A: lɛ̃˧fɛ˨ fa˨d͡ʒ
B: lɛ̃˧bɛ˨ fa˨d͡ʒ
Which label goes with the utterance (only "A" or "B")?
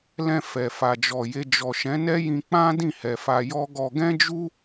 A